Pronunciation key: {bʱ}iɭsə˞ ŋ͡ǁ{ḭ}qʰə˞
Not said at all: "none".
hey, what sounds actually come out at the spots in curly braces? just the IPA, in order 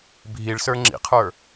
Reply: bʱ, ḭ

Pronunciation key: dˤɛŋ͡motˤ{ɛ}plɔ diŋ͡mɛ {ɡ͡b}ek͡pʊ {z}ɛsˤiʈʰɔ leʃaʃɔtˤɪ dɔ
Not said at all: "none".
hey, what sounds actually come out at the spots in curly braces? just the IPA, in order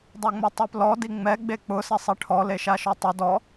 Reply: e, ɡ͡b, s

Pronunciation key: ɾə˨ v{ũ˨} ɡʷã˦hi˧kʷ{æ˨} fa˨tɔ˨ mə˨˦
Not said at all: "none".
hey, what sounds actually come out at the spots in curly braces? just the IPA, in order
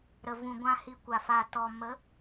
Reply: ũ˨, a˨

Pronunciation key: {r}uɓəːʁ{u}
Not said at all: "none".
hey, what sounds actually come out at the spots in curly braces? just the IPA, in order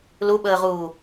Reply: l, uː

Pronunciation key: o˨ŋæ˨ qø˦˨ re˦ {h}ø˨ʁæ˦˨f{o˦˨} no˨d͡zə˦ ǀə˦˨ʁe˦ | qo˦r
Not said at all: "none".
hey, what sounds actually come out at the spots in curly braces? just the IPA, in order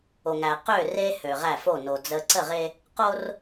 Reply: h, o˦˨

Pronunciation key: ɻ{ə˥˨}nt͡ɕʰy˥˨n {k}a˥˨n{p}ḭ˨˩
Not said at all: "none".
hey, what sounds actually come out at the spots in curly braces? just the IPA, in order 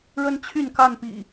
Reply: ə˦, k, p

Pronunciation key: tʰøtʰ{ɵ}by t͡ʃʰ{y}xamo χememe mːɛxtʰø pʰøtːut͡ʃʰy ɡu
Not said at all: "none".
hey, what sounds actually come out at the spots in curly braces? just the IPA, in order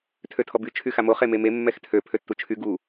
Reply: ɔ, y

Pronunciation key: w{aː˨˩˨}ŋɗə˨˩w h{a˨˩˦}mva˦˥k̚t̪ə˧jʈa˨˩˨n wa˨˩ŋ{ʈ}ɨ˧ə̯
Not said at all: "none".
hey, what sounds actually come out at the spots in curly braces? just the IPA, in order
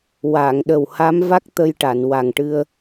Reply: aː˨˩˨, a˧˥, ʈ

